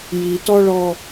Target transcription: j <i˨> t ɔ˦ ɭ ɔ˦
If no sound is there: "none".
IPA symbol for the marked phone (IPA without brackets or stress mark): i˨